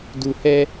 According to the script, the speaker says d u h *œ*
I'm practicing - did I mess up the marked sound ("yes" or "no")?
yes